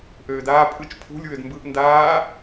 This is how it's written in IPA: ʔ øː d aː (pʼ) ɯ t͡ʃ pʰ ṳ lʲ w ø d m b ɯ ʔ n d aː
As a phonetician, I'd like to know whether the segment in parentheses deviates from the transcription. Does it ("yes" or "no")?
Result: no